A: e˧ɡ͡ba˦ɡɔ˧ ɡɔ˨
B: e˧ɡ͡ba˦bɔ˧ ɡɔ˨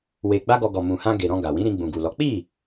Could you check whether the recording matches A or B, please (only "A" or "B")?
A